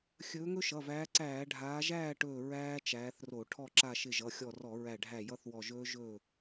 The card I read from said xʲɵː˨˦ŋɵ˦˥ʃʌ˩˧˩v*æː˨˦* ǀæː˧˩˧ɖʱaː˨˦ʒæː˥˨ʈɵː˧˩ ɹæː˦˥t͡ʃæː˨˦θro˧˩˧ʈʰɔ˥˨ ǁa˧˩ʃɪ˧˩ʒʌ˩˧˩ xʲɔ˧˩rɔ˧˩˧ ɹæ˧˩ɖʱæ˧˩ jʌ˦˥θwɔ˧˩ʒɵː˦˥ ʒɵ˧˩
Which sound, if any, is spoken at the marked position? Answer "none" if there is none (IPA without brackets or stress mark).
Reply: æː˨˦